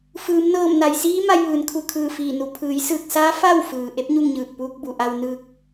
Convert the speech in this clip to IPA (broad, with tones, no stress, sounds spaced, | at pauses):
f ɯː˩˧ m n ɤː˧˩ m n a˩ j s iː˧˥ m a˧ j ʋ ɯː˩˧ n kʰ u˧˩ kʰ ɯː˧˩ f iː˧˩ n u˩ pʰ ɯː˩˧ j s ɯː˧˩ k̚ s aː˧˥ f a˥˨ w f ɯː˩ ʔ e˧˥ p̚ ɲ u˥˨ ŋ ɲ ɯː˧˩ k̚ p uː˧ k̚ b u˩ ʔ a˧ w n ɯː˧ k̚